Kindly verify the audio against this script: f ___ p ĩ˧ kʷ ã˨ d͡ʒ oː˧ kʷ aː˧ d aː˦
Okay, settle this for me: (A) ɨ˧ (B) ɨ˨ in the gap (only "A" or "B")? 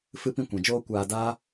A